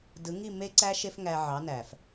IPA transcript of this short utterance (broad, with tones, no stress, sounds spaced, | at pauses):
d ɯ˨˦ ŋ i˦˨ m e˦ ǀ æ˦ ʃ e˦ f ŋ æ˧ ʕ ɑ˨˦ n æ˨ f